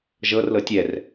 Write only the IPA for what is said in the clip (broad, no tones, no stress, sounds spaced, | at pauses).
ʒ ɤ r l ɤ tʲ ɛ r